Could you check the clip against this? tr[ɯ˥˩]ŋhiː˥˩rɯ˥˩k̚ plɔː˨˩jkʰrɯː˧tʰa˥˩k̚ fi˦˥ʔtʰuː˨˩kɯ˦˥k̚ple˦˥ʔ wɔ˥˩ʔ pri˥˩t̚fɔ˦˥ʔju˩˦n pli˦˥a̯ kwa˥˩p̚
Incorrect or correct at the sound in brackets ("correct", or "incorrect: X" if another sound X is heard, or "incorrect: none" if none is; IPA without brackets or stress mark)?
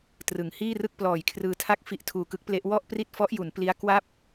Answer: incorrect: ɯ˩˦